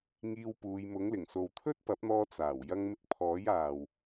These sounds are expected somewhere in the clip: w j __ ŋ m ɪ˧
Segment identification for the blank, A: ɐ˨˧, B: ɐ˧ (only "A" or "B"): B